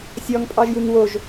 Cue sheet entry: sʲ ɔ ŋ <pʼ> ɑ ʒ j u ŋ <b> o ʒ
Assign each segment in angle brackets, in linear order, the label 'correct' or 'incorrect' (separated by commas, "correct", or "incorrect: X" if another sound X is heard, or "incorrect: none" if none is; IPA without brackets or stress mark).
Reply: correct, incorrect: w